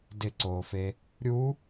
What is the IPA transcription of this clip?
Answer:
dɪǀoːfe | ɾʲu

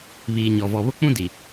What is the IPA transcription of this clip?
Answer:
βiː˨ɲɔ˨ vɔ˨ βʊ˦k͡pũ˦di˨

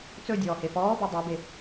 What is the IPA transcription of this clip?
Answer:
t͡sɵdʲɔː hefɔːbɔ dˤɵbe

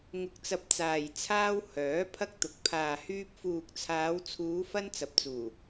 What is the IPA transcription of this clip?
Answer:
ŋʊ˧k̚t͡sɐ˧p̚t͡saː˨j t͡sʰaː˧w hœː˨˥ pʰɐ˥k̚t̪ʊ˨˥k̚ pʰaː˨hyː˧p̚ fuː˨k̚t͡sʰaː˨˧wt͡sʰuː˨˧ fɐ˧n t͡sɐ˨p̚t͡suː˨˩

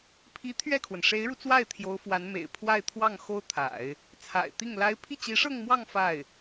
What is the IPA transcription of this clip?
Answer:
pʰi˧˥ t̪ʰɥɛ˥˩kʰwə˩n ʂe˧˥ɪ̯ɻu˧t͡swa˥˩ɪ̯ t̪ʰjo˧˥ʊ̯fwa˧˥nmḛ˨˩ɪ̯ pʰwa˥˧ɪ̯t̪ʰwɑ˥˩ŋ xo˥ʊ̯t̪ʰa̰˨˩˦ɪ̯ | t͡sʰa̰˨˩ɪ̯t̪i˥˩ŋla˥ɪ̯ pʰi˥˩t͡ɕi˧˥ʂɤ˥˧ŋmwɑ˥˧ŋ fa˥˩ɪ̯

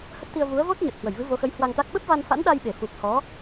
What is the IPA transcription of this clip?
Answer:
hə˦˥t̚t̪i˧ə̯ vu˨˦ə̯ vo˦˥t̚ɲə˨˩t̚ hwə˧˩jvɨ˨˦vo˨˦xə˨˦j hwa˧ŋt̪a˦˥k̚ ɓə˦˥p̚va˧nfa̰˧˥nɗa˧j ɓe˧˩fu˨˩k̚hɔ˨˦

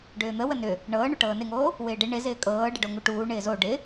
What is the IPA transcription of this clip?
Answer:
ɖʏːn̪ə wənʏ | ɳɤːɳo ʈɤːnɪŋoː | wɪːɖɪ ɳɪzɪː kʼɤːɖɪɖo ŋuʈuːɳɪː zo ɖɪ

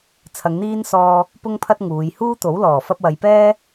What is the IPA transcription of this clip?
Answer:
t͡sʰɐ˨˧ŋn̪iː˥nsɔː˧ | pʊ˥ŋpʰɐ˥t̚ ŋuː˨˧j huː˥t̪o˨˥w lɔː˨˩fɐ˥p̚wɐ˨˧j pɛː˥

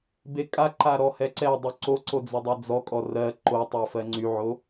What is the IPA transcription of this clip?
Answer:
bekʼaǃa ɾɔhɛǀɛdˤy ǀoǀo d͡zədˤod͡zɔkʼɔ rɜ ǃotˤɜ fɜŋ͡ǀyʕo

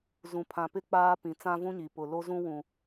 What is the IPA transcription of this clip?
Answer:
zũ˨pʰã˨pɪ˦ k͡paː˦pĩ˨ t͡sã˦vũ˦ɲi˨ pʊ˨ lo˦zũ˦wũ˨

